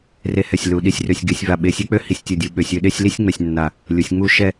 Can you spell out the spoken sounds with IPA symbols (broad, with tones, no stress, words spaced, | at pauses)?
re˧hɛ˧˩sʲ lu˩˧ɗi˧sʲrø˧sʲ ɡe˧sʲva˧˩ ɓe˧sʲe˥k͡pø˥ hi˧sʲtʲu˧˩dʲu˩˧ ɓø˩˧sʲø˧ɗe˥˧sʲli˥sʲ ŋ͡mɛ˧sʲnːa˧˩ | lʲu˩˧sʲ ŋ͡mu˥ ʃɛ˥˧